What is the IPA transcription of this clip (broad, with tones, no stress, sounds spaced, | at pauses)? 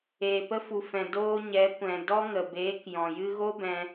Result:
eː˨ p ə˧ f u˨ f ɛ̃˨ d oː˧ ɲ ɛ˨˦ kʷ ɛ̃˨ d ɔ˦ ŋ ə˨ b eː˨˦ k j ɔ̃˨ j ɨ˧ ɣ o˦ b ɛ̃˦